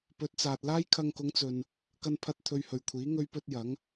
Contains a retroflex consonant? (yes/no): no